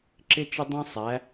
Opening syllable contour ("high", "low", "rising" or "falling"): high